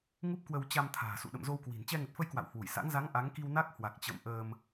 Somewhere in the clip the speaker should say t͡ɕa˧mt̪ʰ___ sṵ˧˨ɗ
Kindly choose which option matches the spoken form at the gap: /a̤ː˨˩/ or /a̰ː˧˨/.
a̤ː˨˩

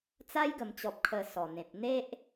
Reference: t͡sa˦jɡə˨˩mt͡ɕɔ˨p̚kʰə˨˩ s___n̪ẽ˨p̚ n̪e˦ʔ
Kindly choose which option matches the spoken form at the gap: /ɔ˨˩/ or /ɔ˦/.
ɔ˨˩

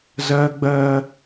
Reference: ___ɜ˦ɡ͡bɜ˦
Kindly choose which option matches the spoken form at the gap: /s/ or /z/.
z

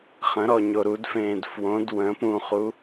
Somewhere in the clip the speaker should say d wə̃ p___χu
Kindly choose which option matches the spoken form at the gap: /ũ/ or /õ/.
ũ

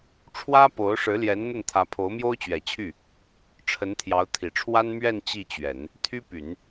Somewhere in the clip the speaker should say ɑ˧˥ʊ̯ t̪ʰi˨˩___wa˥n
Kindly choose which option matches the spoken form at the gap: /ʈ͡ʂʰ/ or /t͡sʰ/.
ʈ͡ʂʰ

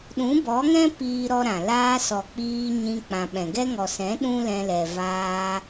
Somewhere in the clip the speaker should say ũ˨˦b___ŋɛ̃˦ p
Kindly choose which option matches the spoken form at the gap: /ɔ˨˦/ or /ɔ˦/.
ɔ˨˦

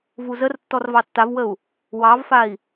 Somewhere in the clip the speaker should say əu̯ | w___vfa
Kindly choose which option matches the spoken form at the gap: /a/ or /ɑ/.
ɑ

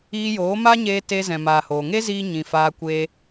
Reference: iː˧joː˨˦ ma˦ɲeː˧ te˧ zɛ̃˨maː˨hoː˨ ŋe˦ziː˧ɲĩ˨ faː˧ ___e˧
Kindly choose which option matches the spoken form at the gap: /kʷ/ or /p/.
kʷ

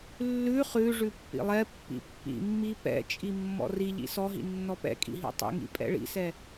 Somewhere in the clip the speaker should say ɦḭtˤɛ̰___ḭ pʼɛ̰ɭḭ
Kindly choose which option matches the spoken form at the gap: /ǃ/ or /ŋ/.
ŋ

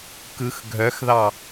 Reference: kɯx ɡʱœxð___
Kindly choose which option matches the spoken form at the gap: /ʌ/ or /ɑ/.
ɑ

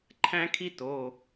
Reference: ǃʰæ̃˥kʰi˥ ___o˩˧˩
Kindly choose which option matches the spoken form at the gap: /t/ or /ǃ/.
t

